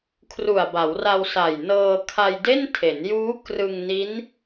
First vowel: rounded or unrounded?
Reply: rounded